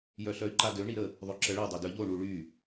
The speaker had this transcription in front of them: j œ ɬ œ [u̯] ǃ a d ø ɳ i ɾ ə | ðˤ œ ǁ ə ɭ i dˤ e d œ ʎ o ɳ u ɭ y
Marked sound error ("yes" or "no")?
yes